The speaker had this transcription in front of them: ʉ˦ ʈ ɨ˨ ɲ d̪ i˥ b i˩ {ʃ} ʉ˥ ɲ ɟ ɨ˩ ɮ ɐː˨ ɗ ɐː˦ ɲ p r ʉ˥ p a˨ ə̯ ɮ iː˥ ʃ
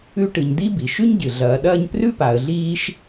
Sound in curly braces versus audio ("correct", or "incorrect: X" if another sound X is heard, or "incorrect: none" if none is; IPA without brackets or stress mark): correct